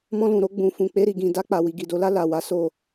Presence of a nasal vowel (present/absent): present